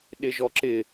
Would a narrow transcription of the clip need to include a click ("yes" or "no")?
yes